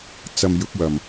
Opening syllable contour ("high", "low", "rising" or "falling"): low